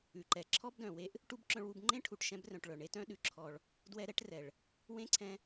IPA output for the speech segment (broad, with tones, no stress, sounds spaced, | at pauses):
ʉ˩ ǃ ɛ˩ ǁʰ ɔ˥ b d œ̃˩ w e˦ ʔ | ʈ u˥ b ǁ œ̃˦ ɭ w u˦ b ŋ͡ǃ ẽ˥ ʈʰ u˨ ʈ ʃ ɛ̃˦ b r œ̃˨ ʈ ɭ œ˨ ɳ e˥ t œ̃˥ ɗ ʉ˩ ǁʰ ɔ˨ ɭ | d w ɛ˦ ɾ ɛ˥ ʈ r ɛ˩ ɭ | w ẽ˥ ǀʰ ɛ̃˦